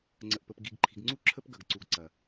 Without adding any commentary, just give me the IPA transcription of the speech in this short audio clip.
ŋ͡ǀ ə˨ ʔ p ə˨ p ɡ i˨ ɡ ǃʰ i̤˨ ɡ ŋ͡ǀ u˦ ǁʰ ə˦ p ɡ ɐ˨ ɡ ǀ u˨ ɡ ǀ ɐ˨

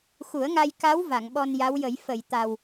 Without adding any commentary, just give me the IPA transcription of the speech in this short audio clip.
x u˨˩˦ ə̯ ŋ a˧ j k a˧˥ w v a˨˩˨ ŋ ɓ ɔ˧ n j a˧˥ w j ə˨˩˦ j f ə˨˩˨ j t̪ a˨˩ w

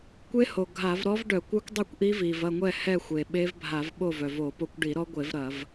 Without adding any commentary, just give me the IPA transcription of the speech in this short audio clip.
kʷ e˦˥ h o˩ ɡʱ a˧˩˧ v ɾ ɔ˦˥ v ɖ œ˧˩˧ kʷ œ˦˥ kʷ dˤ e˥˨ kʷ ʔ i˦˥ v i˩ v ɐ˥˨ ŋʷ ɛ˥˨ h ɛ˥˨ xʷ e˩ ɓ e˦˥ v bʱ a˧˩˧ v ɓ o˥˨ v œ˩ v o˧˩˧ p o˦˥ kʷ ɖ i˧˩˧ ɾ ɔ˦˥ ɡʷ e˧˩˧ v ɾ ɐ˧˩˧ v

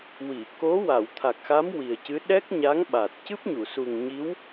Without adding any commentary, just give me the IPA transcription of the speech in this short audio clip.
w i˨˩˨ k o˧˥ w a˨˩˨ w t̪ʰ a˨˩ k̚ x a˧˥ m w i˨˩ ə̯ c ɨ˧˥ ɗ ɛ˦˥ k̚ ɲ a˧˥ ŋ ɓ a˨˩ t̚ c ɨ˦˥ p̚ ɲ u˨˩˨ s u˨˩ ŋ ɲ i˧˥ w

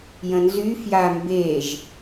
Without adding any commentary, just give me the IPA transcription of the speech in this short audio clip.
j ə̃ n z y f j a m b e ʒ

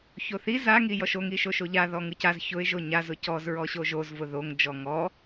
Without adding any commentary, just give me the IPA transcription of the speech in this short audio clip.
ç o θ i z a ŋ i j ɔ ʃ o ŋ i ʃ o ʃ o ʎ a ð ɔ ŋ ɯ c a z ç ʊ ɪ̯ ʒ o ɲ a z ʊ c ɔ z ɹ ɔ ɕ o ʒ o z v ʊ ð o ŋ d͡ʒ ɔ ŋ ɔ

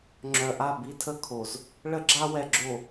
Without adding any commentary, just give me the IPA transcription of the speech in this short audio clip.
ŋ͡ǁ œ˨ ʔ a˦˨ b i˦ tʰ ə˦ kʰ o˨ z | ɭ ə˦ ɡ͡ǁ a˦ w ɛ˨ ɡ͡ǁ o˨

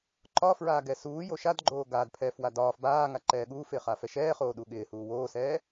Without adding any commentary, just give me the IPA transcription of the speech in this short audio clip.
ǃ ɒ f ɹ aː ɡ ɛ s uː j o ʃ a d ɡ͡ǃ oː ɡ aː d pʰ ɛː f w a d ɒː f b aː ŋ a ǃ ɛː ɠ uː f ɪː χ a f ɛ ʃ ɛː χ oː ɗ u ɠ ɪː h uː w oː s ɛː

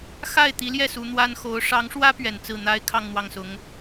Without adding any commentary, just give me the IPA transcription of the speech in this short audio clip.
x a˥˩ ɪ̯ t̪ i˧˥ l j ɛ˥˩ s u˧˥ n̪ w a˥ n x o˧˥ ʊ̯ ʂ ɑ˧˥ ŋ ʂ w ä˥ p ɥ ɛ˨˩ n t͡s ɹ̩˥˩ n̪ a˥ ɪ̯ kʰ ɑ˥˧ ŋ n̪ w ɑ˥˩ ŋ s ʊ˧˥ ŋ

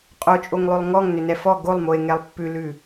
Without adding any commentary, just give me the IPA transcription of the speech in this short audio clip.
qʼ o t͡ʃʼ o ŋ lˠ ʉ lˠ ŋ ɔ ŋ n ʏ n ɛ f ɔ ɡ o lˠ m o e̯ ŋ ɛ lˠ pː ʉ l ʉ

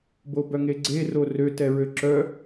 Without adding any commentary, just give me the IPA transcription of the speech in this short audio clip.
b o b œ ŋ e ɡ͡ǀ e r o r ø t ɛ ɹ ø ǁ œ

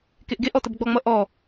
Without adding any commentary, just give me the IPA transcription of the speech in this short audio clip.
k e ʔ ɡ e ʔ ɔ t ə b ɡ͡b ɔ ŋ͡m ʌ ʔ ɔ

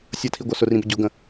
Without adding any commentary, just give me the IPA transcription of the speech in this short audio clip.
sʲ ʌ tʰ i ɡʷ ʌ s ʊ r ĩ b ə ɟ ʊ ɡ ə̃

